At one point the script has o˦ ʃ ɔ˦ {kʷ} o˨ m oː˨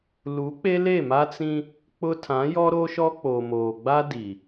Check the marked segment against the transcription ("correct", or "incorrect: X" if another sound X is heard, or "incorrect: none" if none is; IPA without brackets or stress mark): incorrect: k͡p